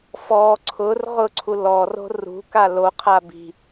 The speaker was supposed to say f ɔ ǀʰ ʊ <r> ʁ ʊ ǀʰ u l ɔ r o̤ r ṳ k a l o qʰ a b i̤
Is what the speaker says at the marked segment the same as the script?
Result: yes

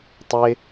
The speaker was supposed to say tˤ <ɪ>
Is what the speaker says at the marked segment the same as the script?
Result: yes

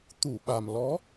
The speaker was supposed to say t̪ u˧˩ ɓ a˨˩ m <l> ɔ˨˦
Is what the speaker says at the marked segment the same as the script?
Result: yes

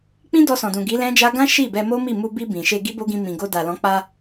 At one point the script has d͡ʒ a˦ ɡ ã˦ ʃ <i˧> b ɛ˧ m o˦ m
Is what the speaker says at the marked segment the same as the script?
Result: no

